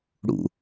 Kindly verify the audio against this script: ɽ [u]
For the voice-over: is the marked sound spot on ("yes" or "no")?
no